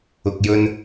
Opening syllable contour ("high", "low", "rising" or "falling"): low